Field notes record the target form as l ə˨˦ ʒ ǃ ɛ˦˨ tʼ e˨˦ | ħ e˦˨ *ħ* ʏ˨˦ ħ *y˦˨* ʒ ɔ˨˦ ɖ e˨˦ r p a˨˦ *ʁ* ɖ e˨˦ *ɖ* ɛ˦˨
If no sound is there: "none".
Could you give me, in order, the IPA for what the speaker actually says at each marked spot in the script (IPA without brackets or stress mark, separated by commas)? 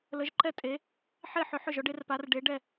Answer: ħ, ʏ˦˨, r, ɖ